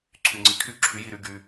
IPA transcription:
ǀʰ y˨ ŋ͡ǀ i˨˥ kʰ y˥˨ ǁʰ y˨˥ j i˨ ɾ y˥˨ ɡ y˨

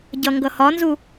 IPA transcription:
ɟ ʌ ŋ ɡ ʌ h ɒ n z u

